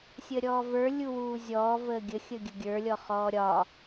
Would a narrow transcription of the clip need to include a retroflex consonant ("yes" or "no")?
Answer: no